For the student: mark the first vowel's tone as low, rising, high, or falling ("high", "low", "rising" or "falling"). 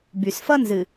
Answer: low